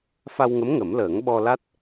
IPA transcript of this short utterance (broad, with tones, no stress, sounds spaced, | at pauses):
f a˧ w ŋ ə˧˥ m ŋ ə˨˩˦ m l əː˨˩˦ ŋ ɓ ɔ˧ l a˦˥ t̚